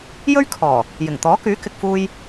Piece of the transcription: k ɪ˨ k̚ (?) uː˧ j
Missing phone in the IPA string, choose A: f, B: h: A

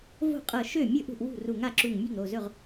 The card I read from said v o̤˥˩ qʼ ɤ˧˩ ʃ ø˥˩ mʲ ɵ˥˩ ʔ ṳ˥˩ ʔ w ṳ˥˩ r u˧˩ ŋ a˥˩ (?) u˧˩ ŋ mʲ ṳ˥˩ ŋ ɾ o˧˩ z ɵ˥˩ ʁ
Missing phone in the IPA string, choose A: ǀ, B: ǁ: B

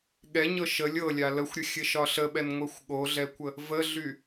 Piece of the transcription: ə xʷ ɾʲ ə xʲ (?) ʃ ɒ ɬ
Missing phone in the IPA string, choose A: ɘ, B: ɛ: A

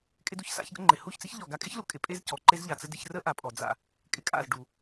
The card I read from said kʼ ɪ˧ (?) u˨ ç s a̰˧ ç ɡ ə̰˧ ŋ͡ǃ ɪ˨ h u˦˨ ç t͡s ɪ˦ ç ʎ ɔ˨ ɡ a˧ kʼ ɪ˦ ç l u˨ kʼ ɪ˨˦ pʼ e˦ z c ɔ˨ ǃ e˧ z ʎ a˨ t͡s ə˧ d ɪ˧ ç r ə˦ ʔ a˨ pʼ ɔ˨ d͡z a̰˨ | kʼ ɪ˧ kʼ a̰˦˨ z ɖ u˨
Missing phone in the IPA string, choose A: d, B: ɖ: A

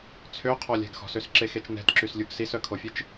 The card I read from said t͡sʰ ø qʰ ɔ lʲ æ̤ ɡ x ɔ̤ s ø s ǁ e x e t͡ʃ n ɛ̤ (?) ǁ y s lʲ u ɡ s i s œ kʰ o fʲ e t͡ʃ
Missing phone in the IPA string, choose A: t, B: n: A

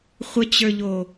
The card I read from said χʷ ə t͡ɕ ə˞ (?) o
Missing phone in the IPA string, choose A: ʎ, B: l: A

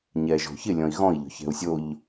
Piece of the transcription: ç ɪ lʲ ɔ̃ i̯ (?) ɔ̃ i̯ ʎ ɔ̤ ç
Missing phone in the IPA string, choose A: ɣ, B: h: A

